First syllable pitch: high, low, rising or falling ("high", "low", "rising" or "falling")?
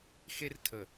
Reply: high